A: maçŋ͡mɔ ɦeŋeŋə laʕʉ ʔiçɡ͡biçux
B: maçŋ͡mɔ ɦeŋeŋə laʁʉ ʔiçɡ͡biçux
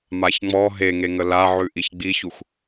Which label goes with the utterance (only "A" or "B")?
A